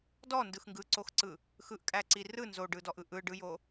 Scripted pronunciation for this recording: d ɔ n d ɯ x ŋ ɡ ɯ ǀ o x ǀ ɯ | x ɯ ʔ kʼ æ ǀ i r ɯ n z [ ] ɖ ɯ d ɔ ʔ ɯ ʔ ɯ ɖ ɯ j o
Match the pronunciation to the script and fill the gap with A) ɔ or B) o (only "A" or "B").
B